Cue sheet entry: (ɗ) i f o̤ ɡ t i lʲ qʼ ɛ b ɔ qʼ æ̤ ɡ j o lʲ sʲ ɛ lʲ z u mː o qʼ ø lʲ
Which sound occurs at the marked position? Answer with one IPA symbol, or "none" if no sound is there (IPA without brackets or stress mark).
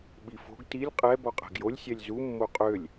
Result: ɓ